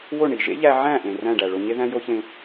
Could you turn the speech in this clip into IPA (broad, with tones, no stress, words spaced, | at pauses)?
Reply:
wo˥˩ɳi˩ ʒḛ˥ʎæ˧ʕæ̃˥˩ʔẽ˩ ræ̃˥˩ɖæ˩ɭo˧ ɲe˥ðæ̃˥jo˥çẽ˧